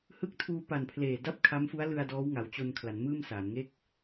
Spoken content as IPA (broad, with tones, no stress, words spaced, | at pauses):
hɯ˦˥k̚tʰuː˧pa˨˩n pʰleː˨˩da˥˩p̚kʰa˦˥m fu˦˥a̯lɯ˧a̯ dɔː˦˥wŋa˩˦w t͡ɕo˧nkʰla˩˦n mɯː˥˩msa˩˦n ŋe˦˥k̚